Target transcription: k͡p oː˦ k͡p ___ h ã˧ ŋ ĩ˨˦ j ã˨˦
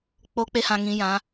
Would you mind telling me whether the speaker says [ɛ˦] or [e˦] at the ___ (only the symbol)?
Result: e˦